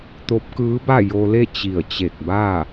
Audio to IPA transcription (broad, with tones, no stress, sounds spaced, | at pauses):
t̪ o˧˥ p̚ k ɯː˧˥ b a˥˨ j o˧ l e˥˨ t͡ɕ i˧˩ ə̯ t͡ɕ e˧˩ k̚ b a˥˨